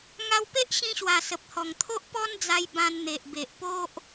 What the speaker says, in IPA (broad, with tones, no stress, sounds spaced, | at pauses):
ŋ a˧ w p e˦ ʔ ɕ ĩ˧ ɕ w a˨˩ s ə˨ p̚ h ɔ˨˩ ŋ t̪ʰ o˦ ʔ p ɔ˦ n d͡z a˧ j b ã˧ n n̪ e˨ ʔ b e˨ ʔ p o˦ ʔ